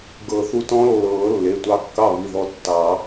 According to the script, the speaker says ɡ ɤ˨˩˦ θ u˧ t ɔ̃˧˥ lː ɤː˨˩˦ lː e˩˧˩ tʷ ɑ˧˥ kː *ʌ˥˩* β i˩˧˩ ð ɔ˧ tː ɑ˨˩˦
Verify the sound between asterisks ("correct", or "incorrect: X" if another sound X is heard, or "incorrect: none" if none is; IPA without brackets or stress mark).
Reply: incorrect: ɑ˥˩